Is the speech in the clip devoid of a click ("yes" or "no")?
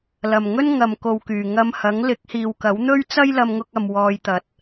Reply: yes